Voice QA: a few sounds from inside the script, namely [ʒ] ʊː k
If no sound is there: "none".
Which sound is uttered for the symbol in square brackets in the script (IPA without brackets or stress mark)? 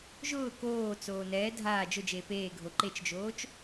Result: ʒ